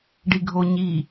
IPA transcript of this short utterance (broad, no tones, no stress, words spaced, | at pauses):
ɖiɡʱo ɲi